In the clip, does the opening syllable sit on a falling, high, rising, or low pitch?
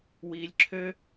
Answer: high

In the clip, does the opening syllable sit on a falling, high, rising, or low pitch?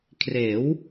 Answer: rising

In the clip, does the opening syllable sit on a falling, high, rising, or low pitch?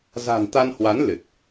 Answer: low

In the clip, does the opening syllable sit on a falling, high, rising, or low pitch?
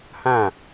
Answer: falling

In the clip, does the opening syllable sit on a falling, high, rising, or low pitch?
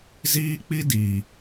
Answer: high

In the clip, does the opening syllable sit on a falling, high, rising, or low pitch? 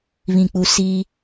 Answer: low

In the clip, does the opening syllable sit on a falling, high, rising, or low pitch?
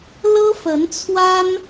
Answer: high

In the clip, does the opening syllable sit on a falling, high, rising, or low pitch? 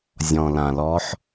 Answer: low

